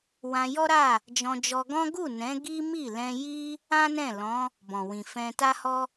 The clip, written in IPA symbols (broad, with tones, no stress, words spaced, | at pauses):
wã˧jɔ˦ɾa˦˨ | d͡ʒɔ̃˧d͡ʒɔ˧ ɡɔ̃˦ ɡu˦˨nɛ̃˨˦ ɡi˦mi˦˨ lɛ̃˧ji˦ | ã˦nɛ̃˦˨ lɔ̃˨˦ | bɔ̃˨wĩ˨fɛ̃˧ ta˦hɔ˦